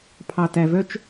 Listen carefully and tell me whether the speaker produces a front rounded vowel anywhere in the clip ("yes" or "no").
yes